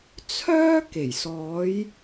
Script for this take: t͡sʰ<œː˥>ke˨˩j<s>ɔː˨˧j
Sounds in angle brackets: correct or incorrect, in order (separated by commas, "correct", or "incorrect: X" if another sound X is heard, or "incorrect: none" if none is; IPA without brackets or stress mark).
correct, correct